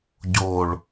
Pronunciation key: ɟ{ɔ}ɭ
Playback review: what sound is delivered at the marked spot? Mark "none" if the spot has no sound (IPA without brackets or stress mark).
o